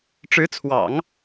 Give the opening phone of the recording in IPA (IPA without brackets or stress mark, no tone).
ʈ͡ʂ